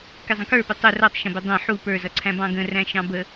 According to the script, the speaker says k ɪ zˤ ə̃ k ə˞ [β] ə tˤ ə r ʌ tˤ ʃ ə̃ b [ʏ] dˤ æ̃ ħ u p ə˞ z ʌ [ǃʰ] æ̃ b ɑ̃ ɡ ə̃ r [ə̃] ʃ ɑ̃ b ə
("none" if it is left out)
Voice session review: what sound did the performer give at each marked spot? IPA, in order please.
p, ɪ, ǀʰ, æ̃

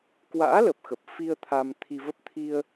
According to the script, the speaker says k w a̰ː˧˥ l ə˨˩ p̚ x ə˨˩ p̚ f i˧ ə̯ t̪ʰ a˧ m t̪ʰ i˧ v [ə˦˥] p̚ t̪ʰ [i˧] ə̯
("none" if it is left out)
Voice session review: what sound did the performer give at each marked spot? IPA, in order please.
ə˦˥, i˧

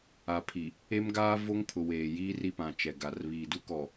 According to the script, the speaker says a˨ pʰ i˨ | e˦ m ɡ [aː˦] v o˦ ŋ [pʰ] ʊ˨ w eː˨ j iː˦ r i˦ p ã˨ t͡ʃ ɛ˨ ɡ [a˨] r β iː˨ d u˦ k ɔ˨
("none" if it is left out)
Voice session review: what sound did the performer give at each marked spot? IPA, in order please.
aː˦, pʰ, a˨

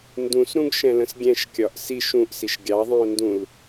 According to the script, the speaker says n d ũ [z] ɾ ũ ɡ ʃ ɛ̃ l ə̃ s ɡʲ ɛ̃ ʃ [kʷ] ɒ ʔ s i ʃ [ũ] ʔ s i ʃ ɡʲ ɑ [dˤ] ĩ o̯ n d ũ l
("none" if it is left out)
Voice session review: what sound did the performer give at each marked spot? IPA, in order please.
s, kʲ, ũ, ðˤ

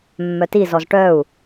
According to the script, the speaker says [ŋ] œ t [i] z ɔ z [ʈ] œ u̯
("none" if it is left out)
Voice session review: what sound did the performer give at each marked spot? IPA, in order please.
mː, i, ʈ

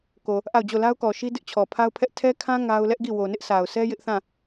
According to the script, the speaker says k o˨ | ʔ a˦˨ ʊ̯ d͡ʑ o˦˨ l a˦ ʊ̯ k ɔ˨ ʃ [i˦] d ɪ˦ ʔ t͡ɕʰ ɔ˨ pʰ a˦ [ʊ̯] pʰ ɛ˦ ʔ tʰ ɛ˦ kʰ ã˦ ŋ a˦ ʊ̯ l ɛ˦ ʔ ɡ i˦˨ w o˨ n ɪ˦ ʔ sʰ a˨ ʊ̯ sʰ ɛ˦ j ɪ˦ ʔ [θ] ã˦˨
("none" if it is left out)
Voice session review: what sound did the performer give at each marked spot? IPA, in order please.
i˦, ʊ̯, θ

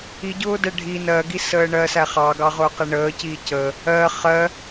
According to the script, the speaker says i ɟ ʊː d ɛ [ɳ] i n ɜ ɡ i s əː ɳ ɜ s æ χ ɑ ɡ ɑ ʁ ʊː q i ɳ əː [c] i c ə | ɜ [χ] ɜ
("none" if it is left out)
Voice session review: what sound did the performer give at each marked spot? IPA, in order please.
ɖʱ, c, χ

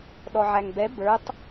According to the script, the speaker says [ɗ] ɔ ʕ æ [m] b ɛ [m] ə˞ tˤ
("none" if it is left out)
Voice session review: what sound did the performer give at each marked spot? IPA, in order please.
ɗ, ŋ, b

